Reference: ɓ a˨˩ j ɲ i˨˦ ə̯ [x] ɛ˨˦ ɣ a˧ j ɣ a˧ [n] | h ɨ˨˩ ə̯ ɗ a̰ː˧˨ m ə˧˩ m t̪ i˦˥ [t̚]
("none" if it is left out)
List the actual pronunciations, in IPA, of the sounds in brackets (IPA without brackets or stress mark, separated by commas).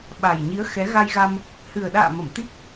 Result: x, m, k̚